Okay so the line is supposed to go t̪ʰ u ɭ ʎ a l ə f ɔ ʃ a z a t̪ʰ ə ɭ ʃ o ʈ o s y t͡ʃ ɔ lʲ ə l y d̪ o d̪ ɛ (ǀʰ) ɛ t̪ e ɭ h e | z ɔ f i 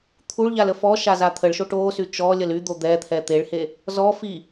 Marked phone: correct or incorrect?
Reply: incorrect